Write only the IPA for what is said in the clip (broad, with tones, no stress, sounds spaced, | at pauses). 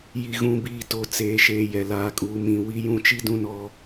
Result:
j i˨ ɣ ũ˨ b iː˨ t o˨ t͡s eː˨ ʃ eː˨ j ɛ˨ l aː˨ kʼ uː˨ m ĩ˨ w i˦ j ũ˦ t͡ʃ i˦ d ũ˦ n ɔ˦